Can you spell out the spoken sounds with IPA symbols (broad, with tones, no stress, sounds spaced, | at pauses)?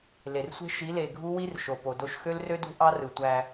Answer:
l e˨ r sʷ e̤˦ ʃ i˨˦ l e˨ ɡʱ u˦ w i˦ r ʃ o˨ p o˨ d o˦ ʃ x ø˦ l r ø˦ d ṳ˦ ʔ ɑ˦ r ɯ˨ tʷ æ˦